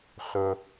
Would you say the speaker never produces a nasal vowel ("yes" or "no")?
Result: yes